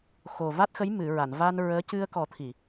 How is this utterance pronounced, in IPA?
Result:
x o˨˩ v a˦˥ t̚ x ə˧˥ j m ɨ˨˩˨ ɹ a˨˩˨ n v a˧ n ɹ əː˧˥ c ɨ˧ ə̯ k ɔ˨˩˦ t̪ʰ i˨˩˨

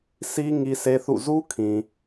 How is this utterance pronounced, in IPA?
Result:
s i˦ ŋ i˦ s e˦ θ ṵ˦˨ z u˦ kʰ ĩ˨

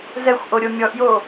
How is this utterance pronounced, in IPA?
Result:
z ɛ xʷ ʔ o ɾʲ o mʲ ɔ ʔ j o

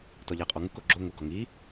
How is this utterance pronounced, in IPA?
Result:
t ɔ ʎ a qʼ ɔ ŋ u k o ɡ͡ǁ o ŋ ʊ ɡ ɔ ŋ i

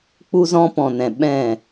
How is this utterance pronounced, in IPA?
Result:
k͡p u˧ z ɔ̃˧ p ɔ̃˨ n ɛ̃˨ ɓ ɛ̃˦˨

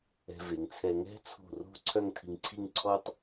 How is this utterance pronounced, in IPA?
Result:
ɛ̤˧ v e˩˧ ŋ t͡sʰ ɛ˧ ŋ ɛ̤˥ t͡sʰ o̤˧˩ r o̤˥˧ ǀʰ œ˥˧ ŋ tʰ i˧ ŋ ǀʰ i˥˧ ŋ ǀʰ ɔ˥ tˤ

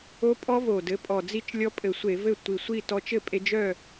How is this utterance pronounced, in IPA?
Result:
o˦˥ pʼ ɔ˦˥ v o˨˩ d ɘ˩˥ pʼ ɔ˨˩ d͡z i˥˩ t͡ʃ lʲ ɔ˦˥ pʼ ɘ˧˩˧ sʷ e˧˩˧ v ɘ˥˩ tʷ i˨˩ sʷ i˥˩ t ɔ˧ t͡ʃ ɘ˥˩ pʼ e˧ d͡ʒ œ˥˩

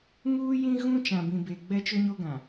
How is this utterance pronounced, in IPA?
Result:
ŋ uː˦ j ĩ˦ ɣ ũ˦ t͡ʃ ã˨ b ĩ˨ b e˨ ɡ͡b ɛ˦ t͡ʃ ʊ˦ ɲ o˦ ɡ ã˨

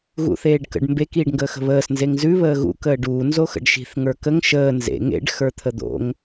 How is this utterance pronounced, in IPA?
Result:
ɣ ṵ θ eː ɖ k ə̰ ɖ m b e k iː ɖ ŋ ɡ əː x ə̤ β əː s n z e ŋ z ʉ β əː ɣ ṵ k əː ɖ uː n z o x ə̰ ɖ ʃ i̤ θ ŋ ə˞ k ə ŋ ʃ əː n z ḛ ŋ ḛ ɖ x ə˞ t̪ʰ ə d̪ o̰ ŋ

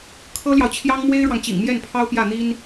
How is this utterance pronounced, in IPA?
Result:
kʰ ɤ˥ l j ɑ˨ ʊ̯ t͡ɕʰ j ɑ˥ ŋ m w e˥ ɪ̯ ɻ w ɑ˨ ŋ t͡ɕ ḭ˨˩ ŋ m j ɛ˥˩ n pʰ ɑ˥ ʊ̯ p j ä˥˩ n̪ i˥ n

